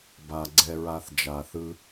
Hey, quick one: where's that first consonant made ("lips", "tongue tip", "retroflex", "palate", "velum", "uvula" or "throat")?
lips